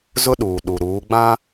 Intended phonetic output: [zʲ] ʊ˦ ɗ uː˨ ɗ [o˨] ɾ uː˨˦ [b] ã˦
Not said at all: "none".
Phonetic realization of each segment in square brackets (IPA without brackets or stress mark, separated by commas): z, u˨, ɡ͡b